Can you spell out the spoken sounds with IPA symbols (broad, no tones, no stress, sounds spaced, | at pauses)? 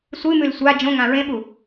sʷ ɨ m ʉ l sʷ a d͡ʒ õ ŋ ã ɹ ẽ ɓ u